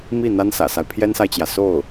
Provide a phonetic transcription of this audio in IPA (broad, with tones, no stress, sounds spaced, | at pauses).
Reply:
m i˥˩ n̪ a˥ n s ä̰˨˩ s a˦ ɪ̯ pʰ j ɛ˥ n s a˨ ɪ̯ t͡ɕ j ä˩ s o˥˩ ʊ̯